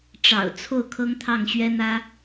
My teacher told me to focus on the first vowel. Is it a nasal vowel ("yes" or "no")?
no